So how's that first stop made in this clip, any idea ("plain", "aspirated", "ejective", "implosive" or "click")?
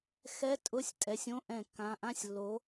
ejective